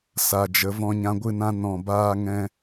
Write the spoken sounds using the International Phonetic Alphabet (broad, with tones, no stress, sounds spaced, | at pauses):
s a˨ d͡ʒ ə˨˦ v ɔ̃˧ ɲ ã˧ ɡʷ ɨ˦˨ n ã˦ n ɔ̃˦˨ b aː˦ ŋ ɛ̃˦